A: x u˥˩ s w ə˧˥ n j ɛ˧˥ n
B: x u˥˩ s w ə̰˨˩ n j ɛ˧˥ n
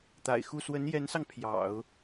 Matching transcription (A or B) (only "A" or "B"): A